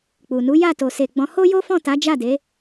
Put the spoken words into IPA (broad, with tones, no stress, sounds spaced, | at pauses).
k͡p u˨ n u˨˦ j a˦˨ t o˨ s e˨ ɡ͡b ɔ̃˨˦ h o˦ j o˦ f ɔ̃˦˨ t a˨˦ d͡ʒ a˦˨ d e˨˦